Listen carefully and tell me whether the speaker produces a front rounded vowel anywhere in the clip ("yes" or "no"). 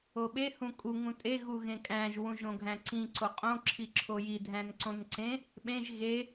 no